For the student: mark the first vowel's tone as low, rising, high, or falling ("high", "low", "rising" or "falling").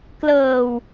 low